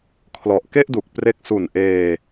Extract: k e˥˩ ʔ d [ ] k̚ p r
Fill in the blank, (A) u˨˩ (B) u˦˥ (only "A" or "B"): A